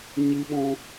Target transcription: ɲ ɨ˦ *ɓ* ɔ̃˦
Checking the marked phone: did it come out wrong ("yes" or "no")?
no